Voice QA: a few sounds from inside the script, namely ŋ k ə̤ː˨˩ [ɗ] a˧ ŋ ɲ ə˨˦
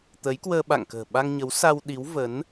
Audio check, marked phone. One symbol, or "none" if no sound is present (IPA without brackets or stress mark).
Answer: ɓ